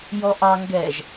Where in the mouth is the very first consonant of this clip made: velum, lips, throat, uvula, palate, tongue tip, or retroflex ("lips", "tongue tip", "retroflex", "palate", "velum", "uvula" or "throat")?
palate